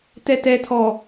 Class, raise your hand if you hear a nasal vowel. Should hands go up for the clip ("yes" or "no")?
no